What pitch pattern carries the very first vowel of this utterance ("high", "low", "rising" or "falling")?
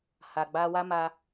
low